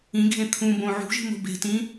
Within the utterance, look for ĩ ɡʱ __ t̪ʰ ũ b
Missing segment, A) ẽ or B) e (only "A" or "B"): A